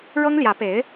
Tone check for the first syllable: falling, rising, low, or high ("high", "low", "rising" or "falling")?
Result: high